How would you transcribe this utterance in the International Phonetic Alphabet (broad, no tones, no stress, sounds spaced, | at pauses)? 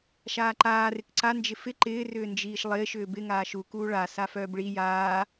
ʃ aː ǃ aː r ɪ k ǀ a n d͡ʒ ɪ f ɪ ǃ ɪː r ʏː n d͡ʒ iː ʃ lˠ ɪː ʃ ʏː b ɪ ŋ aː ʃ u k uː ɭ a s a f œː b ɭ i j aː